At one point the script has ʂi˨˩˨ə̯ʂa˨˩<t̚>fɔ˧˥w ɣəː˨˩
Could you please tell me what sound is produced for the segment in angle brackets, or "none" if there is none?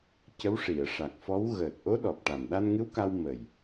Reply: k̚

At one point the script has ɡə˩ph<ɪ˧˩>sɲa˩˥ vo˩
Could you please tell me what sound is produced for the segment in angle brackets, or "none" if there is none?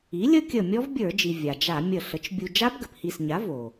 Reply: i˧˩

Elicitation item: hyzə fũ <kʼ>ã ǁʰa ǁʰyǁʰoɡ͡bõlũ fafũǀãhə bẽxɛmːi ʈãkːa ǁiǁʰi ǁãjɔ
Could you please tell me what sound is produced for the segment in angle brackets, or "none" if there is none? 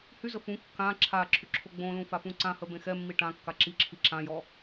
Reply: kː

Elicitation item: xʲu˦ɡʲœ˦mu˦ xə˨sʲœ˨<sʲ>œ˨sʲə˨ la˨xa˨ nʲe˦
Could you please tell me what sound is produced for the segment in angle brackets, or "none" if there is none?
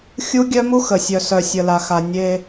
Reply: s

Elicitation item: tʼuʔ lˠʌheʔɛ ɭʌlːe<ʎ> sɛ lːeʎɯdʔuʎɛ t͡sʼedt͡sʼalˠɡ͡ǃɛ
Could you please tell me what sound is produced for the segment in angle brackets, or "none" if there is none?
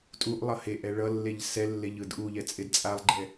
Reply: ʎ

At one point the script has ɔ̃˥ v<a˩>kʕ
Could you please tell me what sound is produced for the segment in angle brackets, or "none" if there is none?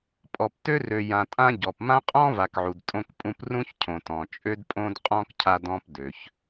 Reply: a˨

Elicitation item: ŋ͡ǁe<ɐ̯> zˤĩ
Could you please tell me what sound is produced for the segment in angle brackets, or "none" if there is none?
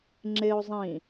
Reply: o̯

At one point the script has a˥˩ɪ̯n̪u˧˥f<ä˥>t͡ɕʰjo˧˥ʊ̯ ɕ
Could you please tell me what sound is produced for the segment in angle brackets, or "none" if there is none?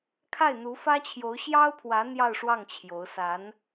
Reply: ä˥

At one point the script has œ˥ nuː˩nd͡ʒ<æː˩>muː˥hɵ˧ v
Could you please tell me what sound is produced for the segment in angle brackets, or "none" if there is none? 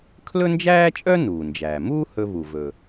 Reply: æː˩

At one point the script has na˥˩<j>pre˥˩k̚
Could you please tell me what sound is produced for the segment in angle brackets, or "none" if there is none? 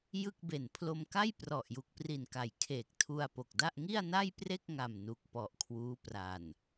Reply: j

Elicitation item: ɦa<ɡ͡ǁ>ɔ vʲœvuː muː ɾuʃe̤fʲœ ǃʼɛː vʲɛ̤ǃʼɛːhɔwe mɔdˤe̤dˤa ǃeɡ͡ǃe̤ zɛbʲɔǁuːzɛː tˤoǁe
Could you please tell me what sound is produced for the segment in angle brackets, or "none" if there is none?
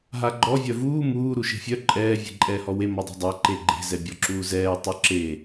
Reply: ɡ͡ǃ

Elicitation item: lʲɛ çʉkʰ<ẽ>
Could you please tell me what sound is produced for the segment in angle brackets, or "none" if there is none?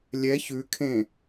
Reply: ẽ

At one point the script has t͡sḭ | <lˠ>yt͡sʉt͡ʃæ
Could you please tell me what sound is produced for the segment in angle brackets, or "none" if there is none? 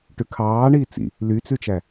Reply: l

